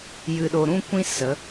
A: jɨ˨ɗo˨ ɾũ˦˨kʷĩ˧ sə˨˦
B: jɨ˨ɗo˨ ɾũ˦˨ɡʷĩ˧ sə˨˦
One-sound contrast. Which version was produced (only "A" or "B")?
A